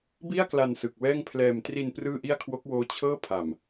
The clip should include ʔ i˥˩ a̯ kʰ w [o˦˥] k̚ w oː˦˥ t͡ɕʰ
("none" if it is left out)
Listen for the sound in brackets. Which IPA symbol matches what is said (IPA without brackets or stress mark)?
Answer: o˦˥